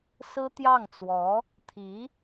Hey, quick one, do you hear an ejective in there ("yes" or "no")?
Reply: no